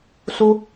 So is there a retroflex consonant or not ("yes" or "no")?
no